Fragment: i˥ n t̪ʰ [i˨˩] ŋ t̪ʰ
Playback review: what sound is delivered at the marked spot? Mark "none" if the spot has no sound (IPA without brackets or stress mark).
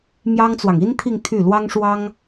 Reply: i˥˧